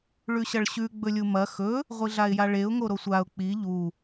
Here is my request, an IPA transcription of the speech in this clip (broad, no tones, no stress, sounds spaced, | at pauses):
ɭ ʉ ɕ ɐ ɭ ɕ ʉ ɡ͡b ɵ lʲ u m ɐ x ɵ | ʁʷ i ɮ a ɪ̯ j a ɭ e ʊ̯ ŋ o ɾ o sʷ a ʊ̯ k͡p i ʎ u